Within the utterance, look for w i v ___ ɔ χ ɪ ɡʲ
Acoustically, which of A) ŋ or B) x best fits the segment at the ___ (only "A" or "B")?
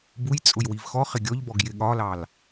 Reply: B